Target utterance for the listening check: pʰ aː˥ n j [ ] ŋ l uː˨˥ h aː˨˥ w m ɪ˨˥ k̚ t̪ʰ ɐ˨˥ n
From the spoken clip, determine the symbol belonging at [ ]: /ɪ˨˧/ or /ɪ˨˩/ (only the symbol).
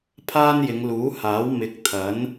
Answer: ɪ˨˧